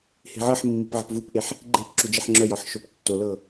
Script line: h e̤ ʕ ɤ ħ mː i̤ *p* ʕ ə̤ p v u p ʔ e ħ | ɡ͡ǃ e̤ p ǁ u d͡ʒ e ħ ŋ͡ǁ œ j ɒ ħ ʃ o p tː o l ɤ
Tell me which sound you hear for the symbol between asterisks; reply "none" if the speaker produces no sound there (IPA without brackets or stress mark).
p